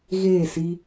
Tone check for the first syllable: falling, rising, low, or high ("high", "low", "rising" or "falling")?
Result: falling